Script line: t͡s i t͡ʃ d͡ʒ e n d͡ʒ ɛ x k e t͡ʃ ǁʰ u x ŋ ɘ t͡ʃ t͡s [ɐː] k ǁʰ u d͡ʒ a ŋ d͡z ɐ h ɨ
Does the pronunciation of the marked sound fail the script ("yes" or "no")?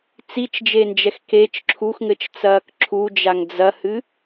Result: no